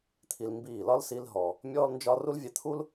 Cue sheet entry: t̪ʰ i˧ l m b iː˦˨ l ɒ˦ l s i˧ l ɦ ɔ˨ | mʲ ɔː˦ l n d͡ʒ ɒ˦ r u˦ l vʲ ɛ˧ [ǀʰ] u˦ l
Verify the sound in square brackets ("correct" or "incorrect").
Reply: incorrect